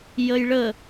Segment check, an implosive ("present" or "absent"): absent